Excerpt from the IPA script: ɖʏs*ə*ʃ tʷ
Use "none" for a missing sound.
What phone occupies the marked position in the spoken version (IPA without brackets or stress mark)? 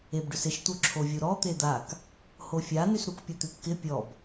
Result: ɪ